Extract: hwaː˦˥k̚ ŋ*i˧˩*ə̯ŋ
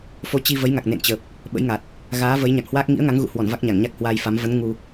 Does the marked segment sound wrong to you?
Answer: yes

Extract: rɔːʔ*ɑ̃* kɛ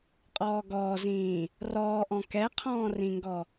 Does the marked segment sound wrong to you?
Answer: yes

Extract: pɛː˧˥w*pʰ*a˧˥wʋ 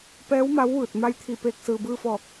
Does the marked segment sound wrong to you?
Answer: yes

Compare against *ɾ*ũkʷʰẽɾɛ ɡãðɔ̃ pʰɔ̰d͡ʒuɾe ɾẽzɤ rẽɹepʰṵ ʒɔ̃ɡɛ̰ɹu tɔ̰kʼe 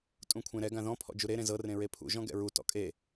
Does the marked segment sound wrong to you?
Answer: yes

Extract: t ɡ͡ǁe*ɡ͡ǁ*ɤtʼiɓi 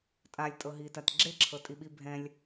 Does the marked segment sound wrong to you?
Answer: yes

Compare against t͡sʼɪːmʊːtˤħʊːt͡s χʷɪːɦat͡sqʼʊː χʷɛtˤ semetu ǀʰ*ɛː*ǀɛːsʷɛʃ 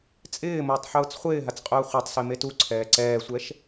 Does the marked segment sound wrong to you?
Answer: no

